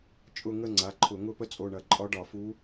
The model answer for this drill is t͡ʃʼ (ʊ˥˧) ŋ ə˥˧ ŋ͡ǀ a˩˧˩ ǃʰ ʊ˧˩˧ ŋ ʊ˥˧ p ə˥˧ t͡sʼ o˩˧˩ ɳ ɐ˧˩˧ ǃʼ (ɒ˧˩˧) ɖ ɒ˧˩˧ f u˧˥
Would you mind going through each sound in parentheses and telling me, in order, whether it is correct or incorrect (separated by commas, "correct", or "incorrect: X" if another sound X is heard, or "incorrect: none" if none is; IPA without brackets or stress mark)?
correct, incorrect: ɒ˧˥